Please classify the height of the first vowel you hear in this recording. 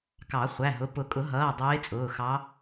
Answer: low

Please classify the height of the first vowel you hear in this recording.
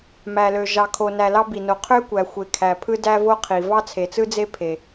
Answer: low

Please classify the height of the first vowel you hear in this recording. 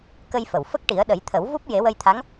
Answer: mid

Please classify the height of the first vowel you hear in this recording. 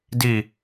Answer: high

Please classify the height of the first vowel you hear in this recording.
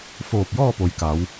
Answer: mid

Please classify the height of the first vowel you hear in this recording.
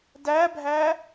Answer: low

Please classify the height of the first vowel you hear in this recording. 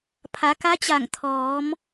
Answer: low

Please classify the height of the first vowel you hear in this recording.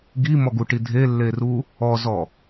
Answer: high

